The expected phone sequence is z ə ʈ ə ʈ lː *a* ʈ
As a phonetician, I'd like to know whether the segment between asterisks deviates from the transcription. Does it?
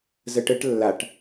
no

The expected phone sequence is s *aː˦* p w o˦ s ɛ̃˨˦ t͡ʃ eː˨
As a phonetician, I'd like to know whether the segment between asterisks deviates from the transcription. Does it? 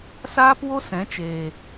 no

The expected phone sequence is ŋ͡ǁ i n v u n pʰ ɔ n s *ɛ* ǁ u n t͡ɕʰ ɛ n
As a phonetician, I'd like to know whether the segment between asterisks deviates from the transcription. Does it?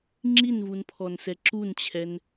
no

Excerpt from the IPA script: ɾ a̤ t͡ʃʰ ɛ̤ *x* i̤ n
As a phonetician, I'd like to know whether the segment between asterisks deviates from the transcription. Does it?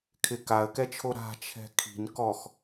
yes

